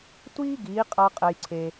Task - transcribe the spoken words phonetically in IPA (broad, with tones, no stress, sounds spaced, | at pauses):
tʷ iː˦ ɡ iː˨˦ qʼ a˧ qʼ ɛ˧ j ǀʰ e˧